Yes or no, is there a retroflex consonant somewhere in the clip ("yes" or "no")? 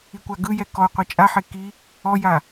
no